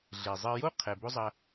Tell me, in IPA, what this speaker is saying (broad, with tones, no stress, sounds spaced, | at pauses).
ɮ e˩ zˤ ɘ˧ j o˥ qʰ ɛ˩ b o˥ zˤ ɐ˧